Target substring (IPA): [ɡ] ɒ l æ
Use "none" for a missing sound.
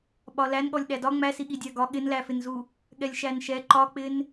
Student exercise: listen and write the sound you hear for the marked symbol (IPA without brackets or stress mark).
ɓ